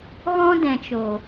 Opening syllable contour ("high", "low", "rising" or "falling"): high